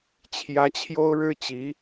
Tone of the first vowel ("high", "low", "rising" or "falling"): rising